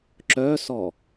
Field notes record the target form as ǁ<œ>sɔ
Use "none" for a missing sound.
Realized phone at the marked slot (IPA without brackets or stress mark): œ